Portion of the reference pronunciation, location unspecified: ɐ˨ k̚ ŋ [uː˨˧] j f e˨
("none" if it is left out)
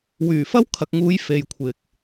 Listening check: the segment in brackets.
uː˨˧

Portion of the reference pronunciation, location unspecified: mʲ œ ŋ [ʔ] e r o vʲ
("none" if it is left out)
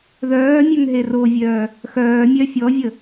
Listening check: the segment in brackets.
ɦ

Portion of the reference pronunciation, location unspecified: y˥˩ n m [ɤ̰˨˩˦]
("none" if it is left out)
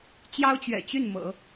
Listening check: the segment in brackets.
ɤ̰˨˩˦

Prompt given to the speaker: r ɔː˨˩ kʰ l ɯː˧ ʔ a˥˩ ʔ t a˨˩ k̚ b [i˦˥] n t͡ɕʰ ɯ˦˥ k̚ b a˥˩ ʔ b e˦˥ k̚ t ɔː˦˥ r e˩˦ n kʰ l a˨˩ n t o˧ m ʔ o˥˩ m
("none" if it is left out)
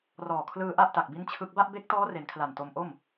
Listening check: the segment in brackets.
i˦˥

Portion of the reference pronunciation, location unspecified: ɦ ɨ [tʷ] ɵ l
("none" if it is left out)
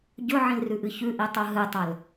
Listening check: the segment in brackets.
tˤ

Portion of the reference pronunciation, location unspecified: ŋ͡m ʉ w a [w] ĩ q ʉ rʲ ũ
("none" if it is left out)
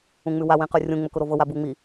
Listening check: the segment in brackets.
w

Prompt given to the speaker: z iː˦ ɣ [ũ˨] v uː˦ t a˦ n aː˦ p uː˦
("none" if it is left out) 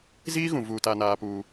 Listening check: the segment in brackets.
ũ˨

